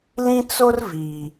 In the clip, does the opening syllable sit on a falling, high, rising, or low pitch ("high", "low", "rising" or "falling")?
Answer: high